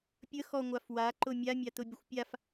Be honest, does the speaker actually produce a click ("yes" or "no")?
yes